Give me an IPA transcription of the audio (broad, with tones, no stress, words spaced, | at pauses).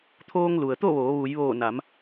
t̪ʰoː˧ŋlu˩ə̯t̪o˥˨ʋoː˩˧ ʋu˩˧jʋoː˧˩ na˩˧m